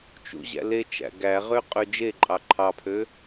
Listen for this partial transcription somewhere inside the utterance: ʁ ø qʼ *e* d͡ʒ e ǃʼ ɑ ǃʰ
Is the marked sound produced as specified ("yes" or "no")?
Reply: no